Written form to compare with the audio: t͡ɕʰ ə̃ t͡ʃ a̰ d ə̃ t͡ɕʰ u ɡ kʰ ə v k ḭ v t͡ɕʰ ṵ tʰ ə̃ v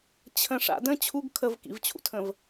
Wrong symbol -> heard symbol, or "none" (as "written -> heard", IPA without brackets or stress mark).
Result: t͡ʃ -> ʂ